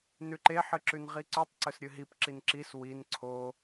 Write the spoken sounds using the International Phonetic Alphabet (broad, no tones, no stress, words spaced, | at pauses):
nʉǃe ħɨǁʉnʁiǀʉtˤ ǀɵsɾʲɨɦip ǁinǁis win ǀʰo